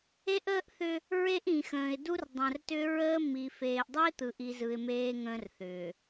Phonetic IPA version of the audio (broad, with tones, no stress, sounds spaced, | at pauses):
e˦ ʔ əː˦ ʔ θ ʏ˦ | ɹ e˦ ʔ ĩ˨ x ə̃ː˨ ɪ̯ d u˦ r dˤ ə̃˨ r t ʏ˦ ɹ əː˦ m i˨ f eː˨ ʔ dˤ e˦ t̪ ɯ˨ ʔ i˦ z ɯ˦ ɪ̯ m eː˦ ŋ ə̃ː˦ r θ ʏː˨